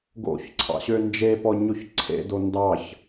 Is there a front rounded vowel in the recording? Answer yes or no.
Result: yes